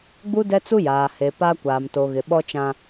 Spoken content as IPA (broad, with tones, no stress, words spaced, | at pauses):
ɡ͡bu˦dɛ˦t͡su˦ jaː˨ he˨pa˦ kʷaː˨mto˨ ɣɪ˨ɓɔ˦t͡ʃã˦